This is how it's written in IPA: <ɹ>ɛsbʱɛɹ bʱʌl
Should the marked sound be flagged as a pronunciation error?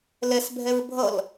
yes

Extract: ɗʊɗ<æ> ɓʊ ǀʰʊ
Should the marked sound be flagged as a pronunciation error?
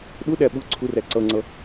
no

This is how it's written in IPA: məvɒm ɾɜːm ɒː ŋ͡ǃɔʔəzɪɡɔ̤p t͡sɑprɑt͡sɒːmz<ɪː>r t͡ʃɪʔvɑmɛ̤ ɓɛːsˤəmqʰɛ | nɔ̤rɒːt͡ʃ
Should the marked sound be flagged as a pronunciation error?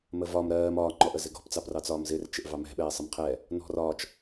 no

